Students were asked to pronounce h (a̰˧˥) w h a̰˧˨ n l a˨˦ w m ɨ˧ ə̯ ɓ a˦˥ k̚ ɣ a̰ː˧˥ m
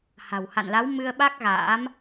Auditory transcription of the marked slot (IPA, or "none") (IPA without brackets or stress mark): a̤˨˩